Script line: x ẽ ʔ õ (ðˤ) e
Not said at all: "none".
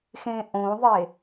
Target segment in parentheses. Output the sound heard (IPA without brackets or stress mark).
ðˤ